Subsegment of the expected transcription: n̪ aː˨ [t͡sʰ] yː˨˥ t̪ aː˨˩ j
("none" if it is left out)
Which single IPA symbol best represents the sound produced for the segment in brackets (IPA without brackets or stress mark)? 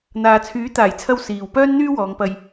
t͡sʰ